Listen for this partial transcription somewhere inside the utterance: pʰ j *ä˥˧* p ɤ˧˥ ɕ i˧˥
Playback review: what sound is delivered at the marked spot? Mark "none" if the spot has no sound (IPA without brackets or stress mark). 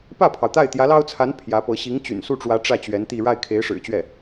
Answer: ä˧˥